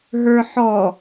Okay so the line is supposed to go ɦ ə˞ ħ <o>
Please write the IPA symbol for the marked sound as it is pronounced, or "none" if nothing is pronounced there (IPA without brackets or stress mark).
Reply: ɔ